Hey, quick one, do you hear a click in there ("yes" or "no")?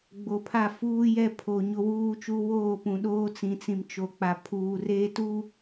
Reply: no